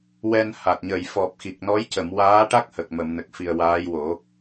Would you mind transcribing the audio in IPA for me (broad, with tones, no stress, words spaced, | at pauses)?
wɛ˧nha˨˩t̚ ɲə˨˩˨jfɔ˨˩p̚xi˨˩k̚ nɔ˧˥jcə˨˩˨mwaː˧˥ʈa˦˥k̚ hə˨˩k̚mə˨˩˨mnə˨˩k̚fi˨˩ə̯ waː˧˥jwo˨˩˦